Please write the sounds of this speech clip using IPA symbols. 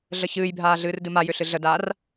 ɮ ə ç ɨː j bʱ aː ɮ ɨː r d ɨ m a j ʏ ɬ ɨ ɮ ə d aː r

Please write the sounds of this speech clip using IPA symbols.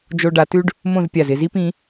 d͡ʒ o˧ ɖ a˩˧ t ʉ˥ ɖ | m õ˥˧ z pʲ a˧˩ z ɪ˥˧ z i˥ p ĩ˩˧

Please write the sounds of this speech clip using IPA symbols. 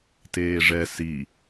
t eː ʐ ɛ s i

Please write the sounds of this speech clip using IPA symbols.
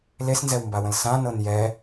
l e s n z ɛ w m b a w ə̃ l s ã n ɤ n j ɛ

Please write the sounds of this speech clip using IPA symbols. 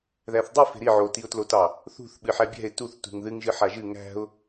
ð æ θ dˤ i f e̤ ɾ i ʕ o t i ʊ̯ t l o t ɑ | θ ṳ θ ɓ ɨ ħ æ bʲ æ̤ ɪ̯ t u θ t ṳ ŋ ð ɨ ŋ ʒ ɨ ħ a ʒ ɨ ŋ æ̤ ʊ̯

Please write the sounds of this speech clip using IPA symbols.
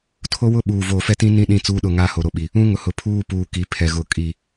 tʰ o˦ w ʊ˦ ɓ uː˨ v oː˨ f ɛ˦ t ĩ˦ n ĩ˦ ɗ ĩ˦˨ t͡s uː˦ ɗ ʊ˦˨ ŋ a˦ h o˨ ɾ o˦ ɓ i˨ | ũ˦ ŋ ʊ˨ h ʊ˨ pʰ uː˦ p uː˨ k i˨ pʰ ɛ˨ ɣ ʊ˨ kʼ i˨

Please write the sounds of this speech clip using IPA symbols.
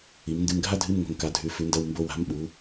i˩˧ m n d ɨ˧ m ɡʱ a˥ dʱ ɨ˧˥˧ m ŋ o̤˧ ŋ k a˨˥ dʱ ʉ˨˥ f ʉ˨˥ n d ɐ˧˥˧ w m b o˧ w a̤˨˥ m ɓ u˩˧

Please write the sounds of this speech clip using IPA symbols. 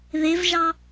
ð e v ʒ ɑ

